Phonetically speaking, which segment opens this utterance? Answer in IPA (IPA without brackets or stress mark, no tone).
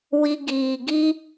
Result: w